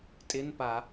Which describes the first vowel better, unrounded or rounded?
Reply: unrounded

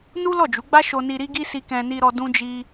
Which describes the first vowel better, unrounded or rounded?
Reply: rounded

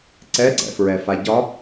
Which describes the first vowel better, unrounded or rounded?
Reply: unrounded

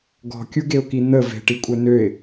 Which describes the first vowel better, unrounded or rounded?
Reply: rounded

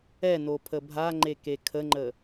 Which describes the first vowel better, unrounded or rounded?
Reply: unrounded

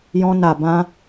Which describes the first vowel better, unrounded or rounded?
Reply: rounded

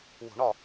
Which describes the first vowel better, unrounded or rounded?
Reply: rounded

